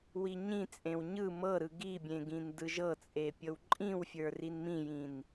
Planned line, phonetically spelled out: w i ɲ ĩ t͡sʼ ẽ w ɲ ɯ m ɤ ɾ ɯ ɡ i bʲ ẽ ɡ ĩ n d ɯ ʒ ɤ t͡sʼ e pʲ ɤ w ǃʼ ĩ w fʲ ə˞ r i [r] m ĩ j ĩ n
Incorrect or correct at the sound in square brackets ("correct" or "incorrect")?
incorrect